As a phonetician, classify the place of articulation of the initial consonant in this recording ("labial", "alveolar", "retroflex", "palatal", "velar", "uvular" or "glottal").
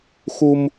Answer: velar